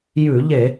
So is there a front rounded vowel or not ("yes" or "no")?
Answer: no